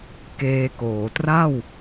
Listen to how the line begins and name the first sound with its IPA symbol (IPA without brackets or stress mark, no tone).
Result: k